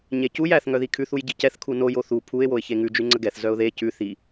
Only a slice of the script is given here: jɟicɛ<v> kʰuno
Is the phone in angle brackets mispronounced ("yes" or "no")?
yes